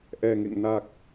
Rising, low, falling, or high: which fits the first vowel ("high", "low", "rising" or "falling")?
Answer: low